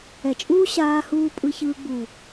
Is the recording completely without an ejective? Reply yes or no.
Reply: no